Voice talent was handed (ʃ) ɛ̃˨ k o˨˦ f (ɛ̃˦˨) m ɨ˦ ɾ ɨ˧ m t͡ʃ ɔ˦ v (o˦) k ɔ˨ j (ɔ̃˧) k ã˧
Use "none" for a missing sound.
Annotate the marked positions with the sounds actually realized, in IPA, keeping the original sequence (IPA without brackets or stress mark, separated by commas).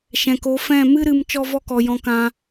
ʃ, ɛ̃˦˨, ɔ˦, ɔ̃˧